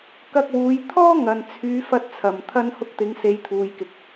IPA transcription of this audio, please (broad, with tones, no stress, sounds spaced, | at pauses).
k ɐ˧ k̚ w uː˨˧ j t̪ʰ ɔː˥ ŋ ɐ˨ n t͡sʰ yː˨˧ f ɐ˧ t̚ t͡sʰ ɐ˨˩ m t̪ʰ ɐ˧ n h ʊ˧ k̚ t̪ ɪ˨˧ ŋ s e˨˧ j t̪ʰ uː˨ j k ɪ˨˥ k̚